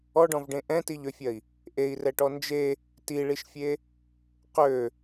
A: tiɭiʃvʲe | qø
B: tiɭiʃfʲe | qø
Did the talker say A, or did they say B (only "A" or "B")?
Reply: B